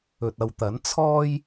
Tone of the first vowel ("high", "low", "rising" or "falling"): low